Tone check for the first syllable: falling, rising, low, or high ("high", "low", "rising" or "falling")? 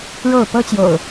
falling